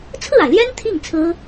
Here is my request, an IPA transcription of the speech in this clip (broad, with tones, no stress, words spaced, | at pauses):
t͡sʰɹ̩˥˩a˩ɪ̯ljɛ˥n t̪ʰi˥˩ŋ t͡sʰɹ̩˥